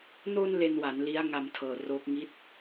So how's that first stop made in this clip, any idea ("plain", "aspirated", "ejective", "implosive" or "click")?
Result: aspirated